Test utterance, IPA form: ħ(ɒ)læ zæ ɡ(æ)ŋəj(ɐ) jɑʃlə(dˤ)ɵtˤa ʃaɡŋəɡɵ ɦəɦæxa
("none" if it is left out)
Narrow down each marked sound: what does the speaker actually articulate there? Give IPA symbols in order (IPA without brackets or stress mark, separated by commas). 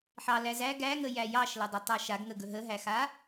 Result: ɑ, æ, æ, dˤ